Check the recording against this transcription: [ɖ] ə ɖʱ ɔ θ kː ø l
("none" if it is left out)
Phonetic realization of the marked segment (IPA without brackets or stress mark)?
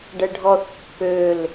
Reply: ɖ